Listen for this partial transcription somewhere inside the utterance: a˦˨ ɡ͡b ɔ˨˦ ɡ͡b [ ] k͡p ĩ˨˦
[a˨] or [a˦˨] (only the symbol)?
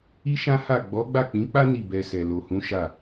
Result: a˦˨